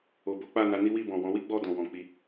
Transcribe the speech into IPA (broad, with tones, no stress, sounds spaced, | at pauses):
o˨ b o˨˦ k͡p a˦˨ n a˨˦ n i˦ w i˦˨ b ɔ̃˨ w ɔ̃˨˦ w i˦ ɡ͡b ɔ˦˨ d ɔ̃˨ w ɔ̃˨ k͡p i˧